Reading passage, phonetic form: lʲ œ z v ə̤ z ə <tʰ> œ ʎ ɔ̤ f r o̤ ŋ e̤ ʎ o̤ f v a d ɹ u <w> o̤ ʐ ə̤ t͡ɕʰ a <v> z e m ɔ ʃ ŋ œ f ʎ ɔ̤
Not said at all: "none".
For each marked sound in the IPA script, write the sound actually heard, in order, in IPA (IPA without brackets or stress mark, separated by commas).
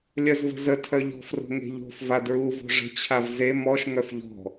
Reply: tʰ, v, v